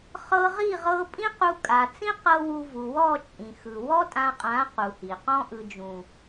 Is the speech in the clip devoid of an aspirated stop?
yes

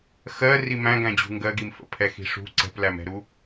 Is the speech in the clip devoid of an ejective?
yes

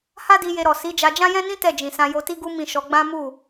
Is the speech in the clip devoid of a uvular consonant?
yes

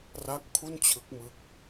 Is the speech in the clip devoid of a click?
yes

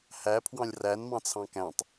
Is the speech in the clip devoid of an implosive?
yes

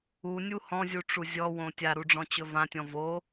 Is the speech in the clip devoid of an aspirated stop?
yes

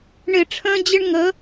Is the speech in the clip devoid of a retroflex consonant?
no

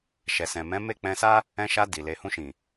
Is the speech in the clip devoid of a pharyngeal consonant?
yes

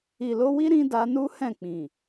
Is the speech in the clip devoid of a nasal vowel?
no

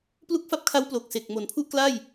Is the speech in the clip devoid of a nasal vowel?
yes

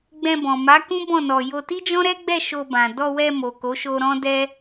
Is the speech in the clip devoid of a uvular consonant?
yes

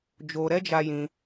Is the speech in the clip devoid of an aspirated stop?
yes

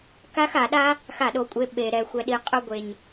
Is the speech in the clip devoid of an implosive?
no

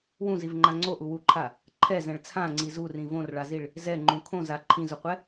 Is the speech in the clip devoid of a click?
no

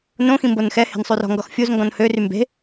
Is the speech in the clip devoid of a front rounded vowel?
no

